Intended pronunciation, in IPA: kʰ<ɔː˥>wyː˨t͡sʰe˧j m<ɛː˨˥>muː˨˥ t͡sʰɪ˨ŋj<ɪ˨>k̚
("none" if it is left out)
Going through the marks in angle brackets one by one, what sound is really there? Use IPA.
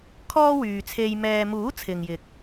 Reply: ɔː˥, ɛː˨, ɪ˨

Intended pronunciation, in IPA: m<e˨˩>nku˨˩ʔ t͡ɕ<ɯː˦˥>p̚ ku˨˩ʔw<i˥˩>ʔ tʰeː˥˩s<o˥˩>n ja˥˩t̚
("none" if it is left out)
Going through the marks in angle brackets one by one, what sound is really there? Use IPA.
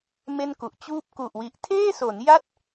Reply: e˥˩, uː˦˥, i˨˩, o˩˦

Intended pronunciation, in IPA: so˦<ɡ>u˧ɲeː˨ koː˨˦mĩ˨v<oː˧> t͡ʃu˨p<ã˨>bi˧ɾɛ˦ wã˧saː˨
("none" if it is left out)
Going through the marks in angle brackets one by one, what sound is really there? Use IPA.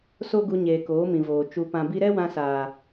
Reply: ɡ, oː˨, ã˨

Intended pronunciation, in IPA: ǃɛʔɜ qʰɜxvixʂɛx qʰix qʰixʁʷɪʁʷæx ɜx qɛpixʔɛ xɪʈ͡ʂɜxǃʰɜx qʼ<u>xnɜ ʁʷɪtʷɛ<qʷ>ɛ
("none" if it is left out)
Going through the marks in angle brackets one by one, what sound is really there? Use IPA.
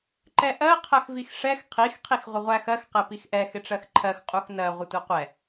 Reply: u, qʷ

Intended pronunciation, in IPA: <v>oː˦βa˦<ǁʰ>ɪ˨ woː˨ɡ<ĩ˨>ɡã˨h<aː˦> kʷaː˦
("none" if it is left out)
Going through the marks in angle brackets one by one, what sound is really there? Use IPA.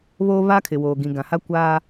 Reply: β, kʰ, ĩ˨, a˦

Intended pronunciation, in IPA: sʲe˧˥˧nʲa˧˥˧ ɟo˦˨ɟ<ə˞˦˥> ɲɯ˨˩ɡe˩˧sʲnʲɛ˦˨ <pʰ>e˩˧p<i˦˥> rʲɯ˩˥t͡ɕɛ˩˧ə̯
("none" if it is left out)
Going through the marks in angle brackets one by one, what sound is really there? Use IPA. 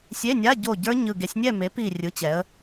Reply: ə˞˦˥, m, i˨˩

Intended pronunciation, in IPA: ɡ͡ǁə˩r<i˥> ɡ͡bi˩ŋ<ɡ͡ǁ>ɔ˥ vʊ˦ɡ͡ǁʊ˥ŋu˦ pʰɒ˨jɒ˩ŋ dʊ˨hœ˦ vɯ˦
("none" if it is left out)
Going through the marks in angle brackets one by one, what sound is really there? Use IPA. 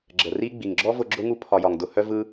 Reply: i˥, ɡ͡ǁ

